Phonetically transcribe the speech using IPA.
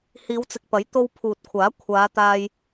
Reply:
hiː˨˧wt͡sɪ˨k̚pɐ˨˥j t̪o˧w pʰuː˨t̚kʷʰaː˨˥ kʷʰaː˨˧t̪aː˧j

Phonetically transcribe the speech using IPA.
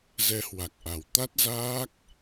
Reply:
zɛ˨˦hwa˨˩k̚ʔa˨˩w t̪a˦˥t̚zaː˦˥k̚

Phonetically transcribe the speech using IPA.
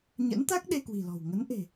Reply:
ɲə̰˧˥nt̪a˦˥k̚ ɗe˧kwi̤˨˩lɔ̤˨˩w ŋə˨˦nʔe̤˨˩

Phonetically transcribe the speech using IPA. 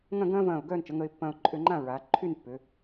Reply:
ŋɐ̃˥˧ɡɐ̃ː˥vɐ̃ː˧˩ʊ̯ ɡœː˥˧nt͡ʃə˩˧ŋə˧ɪ̯ pːɐ̃ː˧ʊ̯ ǃʼʏ˧ŋ͡ǃã˥˧ ɹa˩˧ ǃʰy˥˧npːʏ˩˧

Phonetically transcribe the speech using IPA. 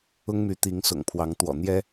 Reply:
ʊ˦ŋmy˨˦t̪i˨˦ŋ sʊ̰˨˩ŋpʰwɑ˨˦ŋ t̪wɔ̰˨˩n̪jɛ˦

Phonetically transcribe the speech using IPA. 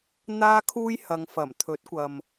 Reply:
n̪aː˥kʰuː˥jhɐ˨˧ŋ fɐ˨˩mt̪ʰɵ˨˥t̚kʷɐ˨m

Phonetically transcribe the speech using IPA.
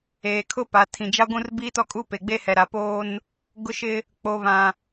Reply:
eː˨kʰʊ˦pa˨ tʰĩ˨d͡ʒa˦ ɡʷũ˦rbiː˦tɔ˦kʼu˦ pe˨ɡ͡be˦hɛ˨ ɾa˨ poː˦n | ɡʊ˦ʃɪ˦ | k͡po˨βã˨

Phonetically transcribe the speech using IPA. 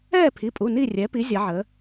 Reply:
ɛː˥˨pʰi˩˧˩pʼu˩˧˩ ni˥˨ rʲɛ˩˧pi˩˧ zʲɐ˩˧ʕə˩˧

